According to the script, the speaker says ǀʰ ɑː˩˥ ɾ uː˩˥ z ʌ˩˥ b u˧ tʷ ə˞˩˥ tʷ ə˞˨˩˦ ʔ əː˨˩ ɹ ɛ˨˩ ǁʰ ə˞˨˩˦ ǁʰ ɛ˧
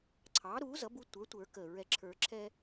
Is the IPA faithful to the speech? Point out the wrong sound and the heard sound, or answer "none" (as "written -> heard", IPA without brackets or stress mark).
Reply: ʔ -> k